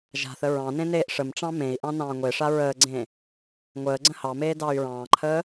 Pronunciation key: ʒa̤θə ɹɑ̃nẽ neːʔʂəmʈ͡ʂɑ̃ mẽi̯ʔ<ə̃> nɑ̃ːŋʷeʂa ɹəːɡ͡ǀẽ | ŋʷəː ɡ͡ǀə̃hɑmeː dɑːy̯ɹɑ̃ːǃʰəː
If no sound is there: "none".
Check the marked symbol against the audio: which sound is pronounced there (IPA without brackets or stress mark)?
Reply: ɑ̃